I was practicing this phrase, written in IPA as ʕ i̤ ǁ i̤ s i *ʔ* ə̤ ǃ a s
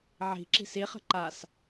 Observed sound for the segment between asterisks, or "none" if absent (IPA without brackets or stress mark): χ